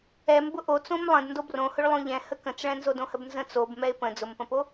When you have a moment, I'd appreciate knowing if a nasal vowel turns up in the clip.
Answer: yes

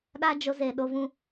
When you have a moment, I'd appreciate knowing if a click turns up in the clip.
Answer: no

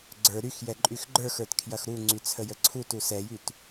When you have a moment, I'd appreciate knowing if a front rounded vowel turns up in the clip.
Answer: yes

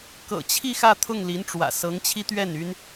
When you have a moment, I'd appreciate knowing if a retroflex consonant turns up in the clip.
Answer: yes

